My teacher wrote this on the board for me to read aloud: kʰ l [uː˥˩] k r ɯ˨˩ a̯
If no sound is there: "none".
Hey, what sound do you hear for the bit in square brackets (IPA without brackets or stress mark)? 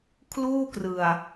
uː˥˩